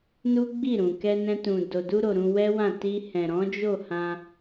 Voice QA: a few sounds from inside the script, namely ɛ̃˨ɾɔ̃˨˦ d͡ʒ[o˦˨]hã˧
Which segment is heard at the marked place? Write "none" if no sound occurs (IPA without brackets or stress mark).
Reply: o˦˨